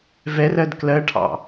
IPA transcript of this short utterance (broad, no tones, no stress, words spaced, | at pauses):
vɛrɜd klɜʈʰɑ̰